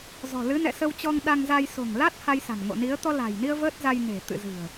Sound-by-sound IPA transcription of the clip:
z ɔ̤˨˩ l ɨ˨˦ n ɛ̰˧˨ s ə˧ w t͡ɕ ɔ˧ ŋ ɗ a˧ ŋ z a˧ j s o̤˨˩ ŋ l a˦˥ t̚ h a˧ j s a̤˨˩ n ŋ o̰˧˨ n i˨˦ ə̯ t̪ ɔ˧ l a̤˨˩ j n i˧ ə̯ v əː˦˥ t̚ z a˧ j n e̤˨˩ t̪ ɨ̰˧˨ z ɨ̤˨˩ ə̯

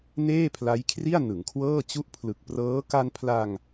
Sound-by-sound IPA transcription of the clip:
n eː˥˩ pʰ l a˦˥ j kʰ r i˥˩ a̯ n ɯ˩˦ ŋ kʰ w ɤː˥˩ t͡ɕ u˦˥ ʔ pʰ l ɯ˨˩ k̚ p r ɤː˦˥ k a˧ n pʰ l a˧ ŋ

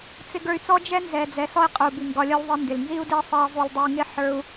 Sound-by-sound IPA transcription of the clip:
t͡s ɪ˧ ɡ ə˞˧ y̯ t͡s ɔ˦ d͡ʒ ɛ˦ n z ɛ˨ d͡z ɛ˨˦ s ɔ˦ i̯ qʼ u˨ b i˨ ŋ ɡ ɒ˧ lʲ ɒ˦ l ðˤ i˧ n d ɪ˨ l n z i˦ u̯ d e˦ sˤ ɛ˧ i̯ zˤ u˧ l dˤ ɪ˧ u̯ ŋ ɪ˦ ħ ə˞˦ u̯

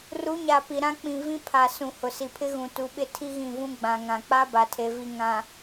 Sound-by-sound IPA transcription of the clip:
r u˨˦ ɲ a˨ p i˨ ɾ ã˦ k͡p ĩ˨ v ĩ˦ pʰ a˨ s ũ˨ h ʊ˨ s i˨ pʰ ɪ˦ ɣ ũ˨ t u˨˦ ɓ ɪ˦ tʰ i˦ ɣ ĩ˦˨ v ũ˦ ɡ͡b ã˨ ŋ ã˨ k͡p a˦ b a˨ tʰ e˨ v i˨ ŋ ã˨

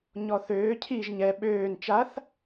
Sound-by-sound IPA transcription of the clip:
ɲ ɔ θ øː cʰ i ʒ ɲ ɛ ɓ øː n t͡ʃ a θ

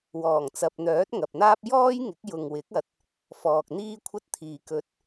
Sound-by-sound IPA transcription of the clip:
w ɔː˨˩ ŋ t͡s ɐ˨ p̚ n̪ œː˨˥ t̚ ŋ ɐ˨ p̚ n̪ aː˥ p̚ j ɔː˥ j ŋ ɪ˨˥ k̚ j ʊ˨ ŋ w ɪ˨˥ k̚ ɐ˨˥ t̚ | f ɔː˨ k̚ n̪ iː˥ kʷʰ ɐ˥ t̚ t̪ʰ iː˨ k ɵ˧ t̚

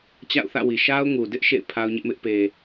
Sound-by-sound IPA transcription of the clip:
t͡ɕ a̰˦˨ ʊ̯ θ ä̰˦˨ w i˨ ʃ a˦ ʊ̯ ŋ u˨ d ɪ˦ ʔ ʃ ḛ˦˨ ɪ̯ pʰ a˦ ʊ̯ ɲ ɪ˦ ʔ m ɪ˦ ʔ p e˨

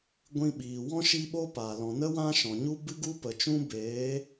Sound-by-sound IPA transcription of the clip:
ɡʷ ĩ˧ ɓ iː˨ w ɔ̃˦ ʃ i˧ ɓ o˦ p a˨ l ɔ̃˨ n ə˦ w ã˦ ʃ ɔ̃˨ ɲ u˦ b ɨ˦ ɡ u˦ p ə˨ t͡ʃ ũ˦ b eː˨˦

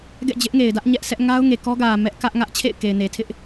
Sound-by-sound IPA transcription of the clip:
ɡ ɛ̰˦˨ d͡ʑ ɪ˦ ʔ ŋ e˨ ɪ̯ d ä˦ ʔ ɲ ɛ˦ ʔ s ɛ˦ ʔ ŋ a˦ ʊ̯ ŋ e˨ k ɔ˦ ɡ ä˨ m ɛ˦ ʔ k ä˦ ʔ ŋ ä˦ ʔ t͡ɕʰ ḛ˦˨ ɪ̯ k e˨ ɪ̯ n e˨ tʰ ɪ˦ ʔ

